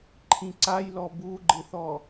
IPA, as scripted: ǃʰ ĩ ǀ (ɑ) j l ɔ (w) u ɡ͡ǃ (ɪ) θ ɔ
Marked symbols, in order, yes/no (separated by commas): no, no, yes